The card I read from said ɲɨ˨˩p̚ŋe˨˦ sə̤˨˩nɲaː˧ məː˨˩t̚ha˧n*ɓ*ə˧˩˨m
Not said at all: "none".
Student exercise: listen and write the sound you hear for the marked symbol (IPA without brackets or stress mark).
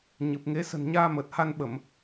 ɓ